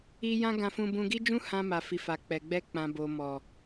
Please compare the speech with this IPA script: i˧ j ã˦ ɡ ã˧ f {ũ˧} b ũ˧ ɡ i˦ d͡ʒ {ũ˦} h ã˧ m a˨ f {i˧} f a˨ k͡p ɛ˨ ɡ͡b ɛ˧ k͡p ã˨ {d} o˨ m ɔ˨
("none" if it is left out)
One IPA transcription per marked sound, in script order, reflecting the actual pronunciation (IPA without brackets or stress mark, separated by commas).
ũ˧, ũ˦, i˨, b